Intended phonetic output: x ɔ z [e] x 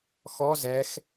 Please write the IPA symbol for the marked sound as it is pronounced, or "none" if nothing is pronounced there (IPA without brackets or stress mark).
ɛ